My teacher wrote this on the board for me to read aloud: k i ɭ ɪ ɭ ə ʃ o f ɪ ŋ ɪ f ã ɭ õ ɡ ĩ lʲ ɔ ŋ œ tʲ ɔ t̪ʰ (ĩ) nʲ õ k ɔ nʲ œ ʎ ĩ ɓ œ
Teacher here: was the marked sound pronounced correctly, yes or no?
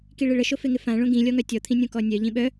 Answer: yes